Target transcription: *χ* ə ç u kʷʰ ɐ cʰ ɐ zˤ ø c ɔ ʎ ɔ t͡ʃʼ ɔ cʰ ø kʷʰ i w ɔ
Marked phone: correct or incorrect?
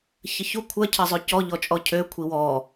incorrect